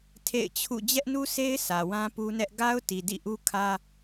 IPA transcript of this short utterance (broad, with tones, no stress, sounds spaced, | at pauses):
tʰ ḛ˦˨ ɪ̯ t͡ɕʰ ṵ˦˨ d͡ʑ ɛ˦ ʔ n u˦ s e˦ ɪ̯ sʰ ä˨ w ã˦ p u˦ n ɛ˦ ʔ ɡ a˦ ʊ̯ t i˨ d ḭ˦˨ ʔ u˦ kʰ ä˦